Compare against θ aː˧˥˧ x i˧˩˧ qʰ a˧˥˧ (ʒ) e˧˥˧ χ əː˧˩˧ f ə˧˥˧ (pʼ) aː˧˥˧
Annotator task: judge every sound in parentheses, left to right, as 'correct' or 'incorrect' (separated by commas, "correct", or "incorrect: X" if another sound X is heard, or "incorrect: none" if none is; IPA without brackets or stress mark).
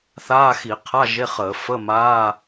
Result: correct, incorrect: m